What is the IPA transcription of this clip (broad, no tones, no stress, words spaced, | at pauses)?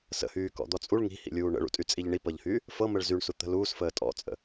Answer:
sə̰hyːkɔ̰d̪ɔ t͡sʼuɭ ŋi̤hḭlʲuː ɳə̰ɭṵtʼyt͡sʼiʎ ɳipɤʎhyː | fɤməɭ zyɳsut̪ə̤ luːsfəː tʼɔ̰t͡sʼə̰